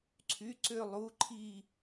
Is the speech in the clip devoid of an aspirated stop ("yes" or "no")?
no